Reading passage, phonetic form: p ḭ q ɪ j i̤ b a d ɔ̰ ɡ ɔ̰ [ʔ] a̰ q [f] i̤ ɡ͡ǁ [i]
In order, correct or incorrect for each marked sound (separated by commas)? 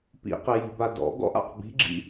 correct, incorrect, incorrect